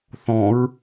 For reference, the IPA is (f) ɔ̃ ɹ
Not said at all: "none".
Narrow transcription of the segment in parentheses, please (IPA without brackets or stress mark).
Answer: θ